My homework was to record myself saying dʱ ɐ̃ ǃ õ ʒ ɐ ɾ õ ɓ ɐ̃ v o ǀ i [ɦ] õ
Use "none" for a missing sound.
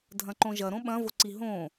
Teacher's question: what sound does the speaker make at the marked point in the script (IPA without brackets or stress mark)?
ɦ